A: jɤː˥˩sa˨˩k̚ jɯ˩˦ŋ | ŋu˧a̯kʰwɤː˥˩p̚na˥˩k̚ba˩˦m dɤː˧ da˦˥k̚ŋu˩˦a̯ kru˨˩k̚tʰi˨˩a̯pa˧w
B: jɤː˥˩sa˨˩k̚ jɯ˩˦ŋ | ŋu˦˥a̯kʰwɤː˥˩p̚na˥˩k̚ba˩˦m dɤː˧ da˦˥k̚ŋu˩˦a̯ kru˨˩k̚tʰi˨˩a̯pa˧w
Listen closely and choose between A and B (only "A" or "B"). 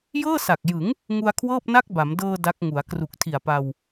A